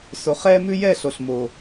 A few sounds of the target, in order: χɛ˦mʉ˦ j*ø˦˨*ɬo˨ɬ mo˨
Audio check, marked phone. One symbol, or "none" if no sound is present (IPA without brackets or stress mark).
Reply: ɛ˦˨